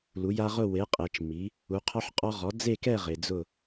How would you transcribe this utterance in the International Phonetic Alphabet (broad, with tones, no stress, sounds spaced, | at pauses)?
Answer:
l u˩˥ j a˦ ʁ ʊ˥˨ w e˩˥ qʼ e˩˧ t͡ʃ m i˩˥ | u˩˥ qʰ ɔ˦ ħ qʼ ɔ˦ ʁ ɔ˩˥ d͡z e˥˨ k ɛ˥˨ ʁ ɪ˩˧ d͡z ʊ˥˨